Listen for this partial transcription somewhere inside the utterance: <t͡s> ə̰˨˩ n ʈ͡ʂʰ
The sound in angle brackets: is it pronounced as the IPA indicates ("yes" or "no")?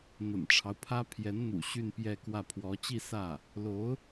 no